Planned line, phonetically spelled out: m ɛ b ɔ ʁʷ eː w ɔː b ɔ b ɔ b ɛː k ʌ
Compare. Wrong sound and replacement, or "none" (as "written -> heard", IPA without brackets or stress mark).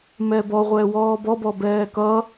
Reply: eː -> ɛː